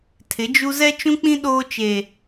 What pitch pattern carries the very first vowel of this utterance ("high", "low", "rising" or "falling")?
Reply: rising